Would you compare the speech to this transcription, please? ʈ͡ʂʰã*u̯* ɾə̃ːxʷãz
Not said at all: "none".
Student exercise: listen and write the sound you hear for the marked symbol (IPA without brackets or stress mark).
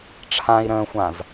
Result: i̯